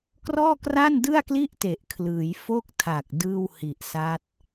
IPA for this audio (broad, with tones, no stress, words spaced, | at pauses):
krɔː˥˩kra˥˩ndɯ˥˩a̯kli˥˩ʔ te˨˩ʔkʰlɯː˩˦j fo˥˩k̚ tʰa˨˩k̚ dɯː˥˩whi˨˩ʔsa˦˥t̚